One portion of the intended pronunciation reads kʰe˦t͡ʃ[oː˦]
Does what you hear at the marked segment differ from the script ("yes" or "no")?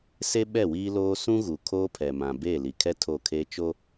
yes